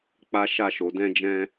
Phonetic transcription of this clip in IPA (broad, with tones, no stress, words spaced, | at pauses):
k͡pa˦ʃa˦˨ ʃo˨˦dɛ̃˦d͡ʒɛ̃˦